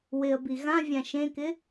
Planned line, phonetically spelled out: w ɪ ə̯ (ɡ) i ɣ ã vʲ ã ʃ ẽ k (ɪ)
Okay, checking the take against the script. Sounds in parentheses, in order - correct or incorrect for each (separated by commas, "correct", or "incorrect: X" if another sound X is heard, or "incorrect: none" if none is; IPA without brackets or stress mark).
incorrect: b, correct